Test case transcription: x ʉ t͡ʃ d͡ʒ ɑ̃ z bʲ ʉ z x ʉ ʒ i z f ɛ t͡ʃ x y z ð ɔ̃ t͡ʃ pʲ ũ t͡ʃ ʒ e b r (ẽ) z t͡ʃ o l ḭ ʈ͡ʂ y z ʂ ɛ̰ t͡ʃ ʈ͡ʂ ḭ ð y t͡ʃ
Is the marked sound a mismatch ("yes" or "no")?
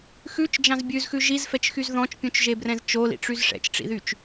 yes